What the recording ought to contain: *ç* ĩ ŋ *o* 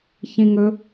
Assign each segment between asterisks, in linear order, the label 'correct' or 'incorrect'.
correct, incorrect: ɵ

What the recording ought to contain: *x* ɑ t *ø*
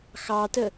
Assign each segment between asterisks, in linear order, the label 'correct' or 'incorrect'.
correct, incorrect: ə

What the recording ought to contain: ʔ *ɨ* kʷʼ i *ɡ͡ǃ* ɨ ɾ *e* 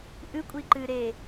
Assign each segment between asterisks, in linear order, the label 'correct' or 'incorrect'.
correct, incorrect: ǃ, correct

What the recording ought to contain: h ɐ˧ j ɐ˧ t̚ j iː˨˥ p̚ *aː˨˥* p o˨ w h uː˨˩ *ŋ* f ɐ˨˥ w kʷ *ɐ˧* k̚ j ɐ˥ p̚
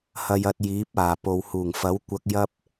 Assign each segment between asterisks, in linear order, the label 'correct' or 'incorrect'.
incorrect: aː˨˩, correct, correct

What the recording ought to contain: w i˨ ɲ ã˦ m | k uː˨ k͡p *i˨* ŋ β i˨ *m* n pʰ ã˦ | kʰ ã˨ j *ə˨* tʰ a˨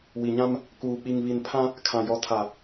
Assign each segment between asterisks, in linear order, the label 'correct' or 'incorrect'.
correct, incorrect: none, incorrect: ɔ˨

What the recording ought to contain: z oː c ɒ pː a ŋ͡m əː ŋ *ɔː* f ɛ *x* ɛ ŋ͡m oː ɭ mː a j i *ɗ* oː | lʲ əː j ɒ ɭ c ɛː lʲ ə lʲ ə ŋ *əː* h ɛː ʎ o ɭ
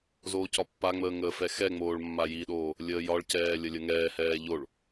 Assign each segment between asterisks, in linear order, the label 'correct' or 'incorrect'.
incorrect: əː, correct, correct, incorrect: ɛː

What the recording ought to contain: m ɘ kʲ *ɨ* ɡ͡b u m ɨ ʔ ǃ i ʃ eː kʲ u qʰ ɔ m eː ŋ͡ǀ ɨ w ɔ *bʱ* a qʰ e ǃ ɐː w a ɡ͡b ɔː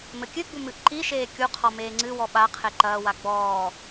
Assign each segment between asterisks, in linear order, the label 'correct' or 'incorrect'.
correct, incorrect: ɓ

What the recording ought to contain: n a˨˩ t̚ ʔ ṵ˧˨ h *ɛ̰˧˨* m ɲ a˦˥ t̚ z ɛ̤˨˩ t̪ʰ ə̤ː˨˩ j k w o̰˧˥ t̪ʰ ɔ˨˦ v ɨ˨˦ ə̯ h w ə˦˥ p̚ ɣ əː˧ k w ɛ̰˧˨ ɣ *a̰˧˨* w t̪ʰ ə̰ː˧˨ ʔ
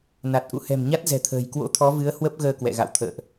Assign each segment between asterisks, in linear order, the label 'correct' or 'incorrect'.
incorrect: ɛ̤˨˩, correct

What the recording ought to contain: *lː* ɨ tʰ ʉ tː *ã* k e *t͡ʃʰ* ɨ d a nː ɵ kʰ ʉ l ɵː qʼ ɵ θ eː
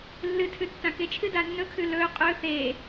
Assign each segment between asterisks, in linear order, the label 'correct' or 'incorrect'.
correct, correct, correct

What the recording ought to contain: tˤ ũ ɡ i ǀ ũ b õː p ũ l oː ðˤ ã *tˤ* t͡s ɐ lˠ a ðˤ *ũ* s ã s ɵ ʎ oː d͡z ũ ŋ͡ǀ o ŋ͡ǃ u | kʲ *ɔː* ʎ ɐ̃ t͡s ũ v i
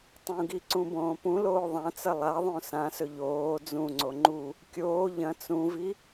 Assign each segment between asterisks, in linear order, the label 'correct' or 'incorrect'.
incorrect: none, incorrect: õ, incorrect: oː

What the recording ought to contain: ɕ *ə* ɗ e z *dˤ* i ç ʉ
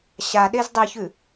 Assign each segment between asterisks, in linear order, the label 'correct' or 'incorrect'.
incorrect: a, correct

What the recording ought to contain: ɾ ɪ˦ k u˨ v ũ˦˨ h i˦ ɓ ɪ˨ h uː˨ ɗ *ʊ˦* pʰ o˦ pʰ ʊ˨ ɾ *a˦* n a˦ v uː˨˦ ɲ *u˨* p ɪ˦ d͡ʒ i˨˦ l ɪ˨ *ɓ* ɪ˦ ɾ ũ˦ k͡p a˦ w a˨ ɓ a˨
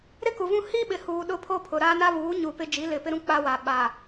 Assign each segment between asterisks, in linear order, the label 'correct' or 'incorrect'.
correct, correct, correct, incorrect: p

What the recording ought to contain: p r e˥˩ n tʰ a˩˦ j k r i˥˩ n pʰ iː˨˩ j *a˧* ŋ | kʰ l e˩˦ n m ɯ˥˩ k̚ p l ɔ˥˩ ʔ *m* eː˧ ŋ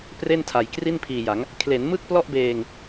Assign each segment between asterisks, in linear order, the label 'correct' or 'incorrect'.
incorrect: a˩˦, incorrect: b

